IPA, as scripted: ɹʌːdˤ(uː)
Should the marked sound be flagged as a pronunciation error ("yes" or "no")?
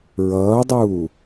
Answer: no